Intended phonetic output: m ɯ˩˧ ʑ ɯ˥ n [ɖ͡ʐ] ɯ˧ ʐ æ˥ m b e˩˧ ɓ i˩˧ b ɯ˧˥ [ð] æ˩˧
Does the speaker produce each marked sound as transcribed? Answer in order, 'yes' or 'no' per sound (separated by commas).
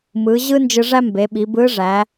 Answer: no, no